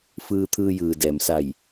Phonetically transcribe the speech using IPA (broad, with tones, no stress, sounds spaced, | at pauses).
f ɯː˧ t̪ʰ ɯː˧ j ɯː˩ d ɛː˩ m s a˧˩ j